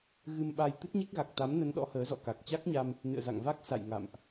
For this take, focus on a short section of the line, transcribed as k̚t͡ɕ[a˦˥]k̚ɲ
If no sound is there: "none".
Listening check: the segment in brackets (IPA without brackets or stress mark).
a˦˥